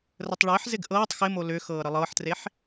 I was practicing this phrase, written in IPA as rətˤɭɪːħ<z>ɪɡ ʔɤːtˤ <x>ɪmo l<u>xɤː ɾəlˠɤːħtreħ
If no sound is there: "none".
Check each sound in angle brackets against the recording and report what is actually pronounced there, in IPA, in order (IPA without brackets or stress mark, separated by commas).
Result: z, x, ʏ